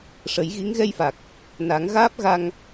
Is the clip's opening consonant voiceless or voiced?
voiceless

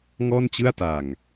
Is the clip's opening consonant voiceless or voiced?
voiced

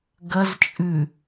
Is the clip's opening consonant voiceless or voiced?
voiced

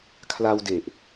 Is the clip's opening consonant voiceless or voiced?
voiceless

